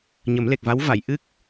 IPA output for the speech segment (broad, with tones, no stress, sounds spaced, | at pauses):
ɲ ə˨˩˦ m l e˨˩ k̚ v a˧˥ w v a˨˩˨ j ʔ ɨ˦˥ k̚